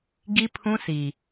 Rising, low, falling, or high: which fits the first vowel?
high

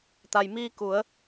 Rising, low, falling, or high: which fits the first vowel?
low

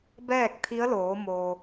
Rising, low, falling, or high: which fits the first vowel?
falling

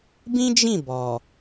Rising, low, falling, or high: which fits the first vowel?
high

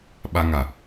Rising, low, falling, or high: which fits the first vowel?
high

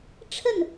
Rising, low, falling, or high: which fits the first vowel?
falling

